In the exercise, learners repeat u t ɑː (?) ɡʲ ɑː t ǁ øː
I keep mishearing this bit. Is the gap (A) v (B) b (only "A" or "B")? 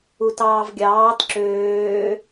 A